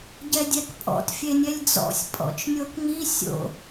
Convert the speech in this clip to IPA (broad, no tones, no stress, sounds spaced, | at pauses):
ɟ ɛ dʲ ɛ k pʼ ɔ̰ t fʲ e nʲ ɛ lʲ d͡z ɔ̰ sʲ pʼ ɔ̰ t͡ʃ mʲ o k ŋ i sʲ o̰